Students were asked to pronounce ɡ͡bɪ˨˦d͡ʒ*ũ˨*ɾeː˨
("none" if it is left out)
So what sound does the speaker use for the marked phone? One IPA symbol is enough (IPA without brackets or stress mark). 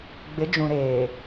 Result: ũ˨